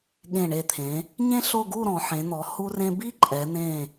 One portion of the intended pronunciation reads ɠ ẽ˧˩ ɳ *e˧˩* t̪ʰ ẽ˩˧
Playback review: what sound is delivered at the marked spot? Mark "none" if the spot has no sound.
e˧˩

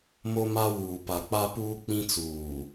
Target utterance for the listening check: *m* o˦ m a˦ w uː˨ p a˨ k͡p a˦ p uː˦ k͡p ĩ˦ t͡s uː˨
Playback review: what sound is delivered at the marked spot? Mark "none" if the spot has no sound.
m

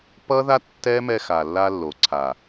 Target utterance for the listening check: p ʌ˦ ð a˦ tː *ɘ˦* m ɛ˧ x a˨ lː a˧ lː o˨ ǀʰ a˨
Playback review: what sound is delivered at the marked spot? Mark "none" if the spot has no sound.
ɛ˦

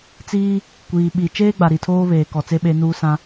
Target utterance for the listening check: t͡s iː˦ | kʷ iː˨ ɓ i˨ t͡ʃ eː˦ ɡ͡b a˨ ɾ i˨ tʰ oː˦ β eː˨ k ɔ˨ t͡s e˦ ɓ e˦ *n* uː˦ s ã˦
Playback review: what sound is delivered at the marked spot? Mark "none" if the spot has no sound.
n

